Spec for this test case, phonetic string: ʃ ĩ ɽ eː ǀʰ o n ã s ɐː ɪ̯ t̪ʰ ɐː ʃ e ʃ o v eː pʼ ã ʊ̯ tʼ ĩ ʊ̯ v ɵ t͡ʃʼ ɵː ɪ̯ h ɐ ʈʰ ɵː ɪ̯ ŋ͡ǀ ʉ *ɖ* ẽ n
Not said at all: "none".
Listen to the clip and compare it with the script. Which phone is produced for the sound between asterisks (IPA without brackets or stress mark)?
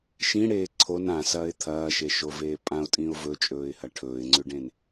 ɖ